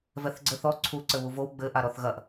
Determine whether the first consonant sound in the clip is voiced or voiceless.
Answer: voiced